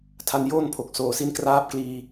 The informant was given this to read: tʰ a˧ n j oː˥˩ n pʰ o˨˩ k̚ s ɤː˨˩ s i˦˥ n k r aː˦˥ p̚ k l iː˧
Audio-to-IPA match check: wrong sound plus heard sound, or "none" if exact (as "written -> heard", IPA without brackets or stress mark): ɤː˨˩ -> oː˨˩